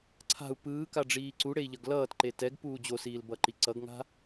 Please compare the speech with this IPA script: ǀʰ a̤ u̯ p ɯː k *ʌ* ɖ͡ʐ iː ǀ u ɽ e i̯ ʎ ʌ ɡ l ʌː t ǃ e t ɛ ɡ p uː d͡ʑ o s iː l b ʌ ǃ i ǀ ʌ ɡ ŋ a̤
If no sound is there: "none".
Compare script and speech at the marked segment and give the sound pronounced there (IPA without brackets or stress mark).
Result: a